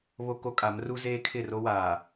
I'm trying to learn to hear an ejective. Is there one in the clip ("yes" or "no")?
yes